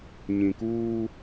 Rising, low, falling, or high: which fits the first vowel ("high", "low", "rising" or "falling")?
low